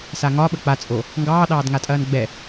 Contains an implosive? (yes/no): yes